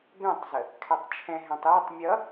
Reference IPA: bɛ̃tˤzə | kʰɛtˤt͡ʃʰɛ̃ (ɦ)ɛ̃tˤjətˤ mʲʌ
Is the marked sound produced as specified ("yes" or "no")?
yes